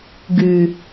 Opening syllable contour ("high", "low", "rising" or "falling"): low